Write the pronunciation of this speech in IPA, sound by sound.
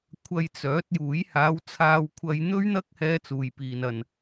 kʷʰ ɐ˧ j t͡s œː˨˥ t̚ j uː˨˥ j h aː˨˧ w t͡sʰ aː˧ w kʷʰ ɐ˧ j n̪ ɵ˥ ɥ n̪ ɐ˥ k̚ h ɛː˥ t͡s uː˨ j p iː˨ n ɐ˨ n

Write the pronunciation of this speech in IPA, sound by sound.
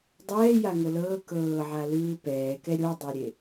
dˤ ɛː j a ŋ ɤ l ɤː k ɤː ʕ a l ɯː p ɛː k ɛ ɾʲ o dˤ e ɾʲ e

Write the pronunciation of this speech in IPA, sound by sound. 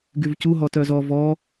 ɡ y v c u ɦ ɔ t œ z ɔ v ɔ

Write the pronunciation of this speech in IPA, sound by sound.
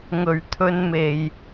ŋ ɵ˧ ɥ t̪ʰ ɵ˥ n m e˧ j

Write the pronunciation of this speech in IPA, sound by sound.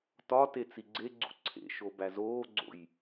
t ɒ t e t͡s i ɡ͡ǀ e ɡ͡ǀ ṵ ǀʰ ḛ ʃ o b æ z oː ɡ͡ǀ o̰ j

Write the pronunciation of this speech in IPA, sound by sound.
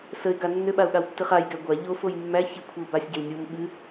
s ə ɪ̯ ɡ a nː ʏ ɓ a ʊ̯ ɠ a w tː ɨ χ a j ɡ æ ɡʷ a ʎ o f o j mː æ ç ɨ kʷʰ ɛ ʊ̯ b a sʲ ɟ ɛ w nʲ o m ɓ ɨ

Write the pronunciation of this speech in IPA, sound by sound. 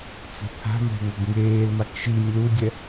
t͡s e̤ t̪ʰ a̤ m ɛ̤ ŋ ʌ ɡ ŋ eː l m a k ʃ i nʲ l u dʲ ɛ

